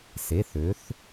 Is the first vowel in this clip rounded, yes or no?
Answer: no